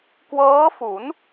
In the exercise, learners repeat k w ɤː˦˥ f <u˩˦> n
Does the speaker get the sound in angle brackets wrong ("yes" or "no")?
no